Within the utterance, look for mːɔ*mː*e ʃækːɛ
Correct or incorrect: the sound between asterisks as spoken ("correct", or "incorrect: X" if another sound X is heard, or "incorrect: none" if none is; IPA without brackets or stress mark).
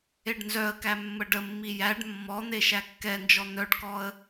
incorrect: n̪